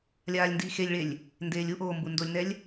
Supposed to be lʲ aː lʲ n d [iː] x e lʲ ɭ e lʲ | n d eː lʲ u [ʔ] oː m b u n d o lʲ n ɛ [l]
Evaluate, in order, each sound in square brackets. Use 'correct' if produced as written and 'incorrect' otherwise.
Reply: correct, correct, incorrect

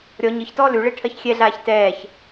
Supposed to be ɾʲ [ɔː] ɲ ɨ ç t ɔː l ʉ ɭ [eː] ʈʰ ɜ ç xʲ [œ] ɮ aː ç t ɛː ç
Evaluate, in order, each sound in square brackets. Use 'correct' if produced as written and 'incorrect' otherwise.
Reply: incorrect, incorrect, incorrect

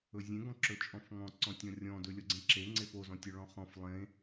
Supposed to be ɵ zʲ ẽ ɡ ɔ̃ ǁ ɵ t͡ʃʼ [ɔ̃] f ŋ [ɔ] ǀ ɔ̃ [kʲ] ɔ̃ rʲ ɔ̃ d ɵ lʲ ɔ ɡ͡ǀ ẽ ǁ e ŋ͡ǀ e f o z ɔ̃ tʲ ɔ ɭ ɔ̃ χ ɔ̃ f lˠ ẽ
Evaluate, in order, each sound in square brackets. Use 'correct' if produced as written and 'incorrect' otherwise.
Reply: correct, incorrect, incorrect

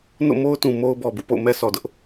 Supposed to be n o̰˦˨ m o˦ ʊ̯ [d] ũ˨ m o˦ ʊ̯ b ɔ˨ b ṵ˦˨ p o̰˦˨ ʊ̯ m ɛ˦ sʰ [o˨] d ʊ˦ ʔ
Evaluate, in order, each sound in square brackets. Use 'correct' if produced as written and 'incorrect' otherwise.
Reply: incorrect, incorrect

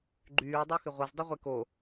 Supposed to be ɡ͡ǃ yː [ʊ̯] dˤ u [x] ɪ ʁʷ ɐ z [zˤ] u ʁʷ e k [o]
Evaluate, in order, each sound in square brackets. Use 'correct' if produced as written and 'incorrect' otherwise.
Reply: correct, correct, incorrect, correct

